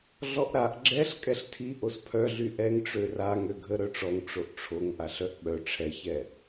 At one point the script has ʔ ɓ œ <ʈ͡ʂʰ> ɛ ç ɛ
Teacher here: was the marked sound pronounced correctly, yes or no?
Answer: yes